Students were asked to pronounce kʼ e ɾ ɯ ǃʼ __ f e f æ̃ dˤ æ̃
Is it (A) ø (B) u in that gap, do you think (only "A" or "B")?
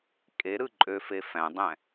A